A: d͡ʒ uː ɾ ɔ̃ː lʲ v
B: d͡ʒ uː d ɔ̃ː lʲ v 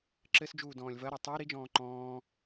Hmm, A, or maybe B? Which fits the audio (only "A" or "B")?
B